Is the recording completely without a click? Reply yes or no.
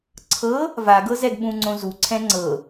no